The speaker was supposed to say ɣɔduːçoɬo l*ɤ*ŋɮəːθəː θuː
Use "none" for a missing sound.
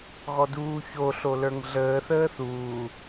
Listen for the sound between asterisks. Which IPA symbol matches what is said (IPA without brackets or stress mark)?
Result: ə˞